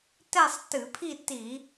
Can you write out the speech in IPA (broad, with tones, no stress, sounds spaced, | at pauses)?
t ɛ˥˧ sˤ t ɨ˧˩˧ pʰ i˥˧ t i˧˩˧